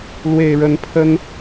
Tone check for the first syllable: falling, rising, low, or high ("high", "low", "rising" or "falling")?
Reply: low